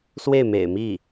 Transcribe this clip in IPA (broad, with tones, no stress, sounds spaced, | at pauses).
s w e˥˩ ɪ̯ m ḛ˨˩ ɪ̯ m i˥˩